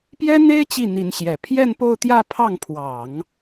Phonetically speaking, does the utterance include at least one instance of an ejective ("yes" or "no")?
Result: no